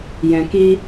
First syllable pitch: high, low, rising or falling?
low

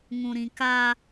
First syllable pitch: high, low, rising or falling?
low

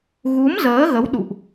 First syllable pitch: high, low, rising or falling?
rising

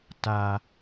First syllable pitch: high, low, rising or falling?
low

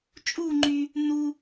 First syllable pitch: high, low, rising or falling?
falling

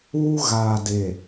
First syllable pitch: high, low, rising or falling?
high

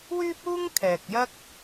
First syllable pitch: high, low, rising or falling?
high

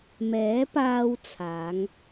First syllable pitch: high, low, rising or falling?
rising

